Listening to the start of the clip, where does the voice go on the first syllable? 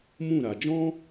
falling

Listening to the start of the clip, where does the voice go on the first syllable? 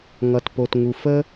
low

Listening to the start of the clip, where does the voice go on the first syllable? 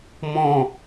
falling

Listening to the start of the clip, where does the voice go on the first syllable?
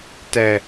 low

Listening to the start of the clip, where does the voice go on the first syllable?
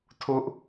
high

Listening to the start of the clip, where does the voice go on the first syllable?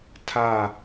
falling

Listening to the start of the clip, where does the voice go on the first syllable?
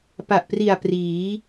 low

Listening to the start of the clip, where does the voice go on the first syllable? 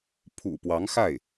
low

